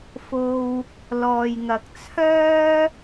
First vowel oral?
yes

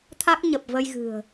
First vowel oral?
yes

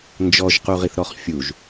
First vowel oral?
yes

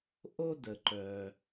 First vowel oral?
yes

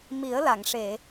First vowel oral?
yes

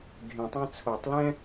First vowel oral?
no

